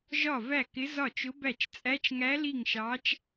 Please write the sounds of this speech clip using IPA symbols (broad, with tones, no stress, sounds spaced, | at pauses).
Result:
ʒ ɒ˥˩ v æ˥˩ k ɪ˧˥ z ɒ˥˩ t͡ʃ ʊ˧˥ b æ˥˩ t͡ʃ t͡sʼ æ˧˥ t͡ʃ ŋ æ˧˥ l i˥˩ ŋ ʃ ɑ˧˥ t͡ʃ